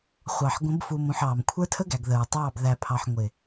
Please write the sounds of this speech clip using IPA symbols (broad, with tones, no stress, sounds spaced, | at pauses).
χʷ ɑ˨ ħ ɡʷ ə̃˨˦ b f u˨ m ũ˨ ħ ɑː˨ m kʷʰ ə˞˦ tʰ ə˦ ɡ æ˨ ɡ ð ə˨ ɹ tˤ ɑː˦˨ b ð æ˨ pʰ ɑ˨ ħ ŋʷ ɪ˨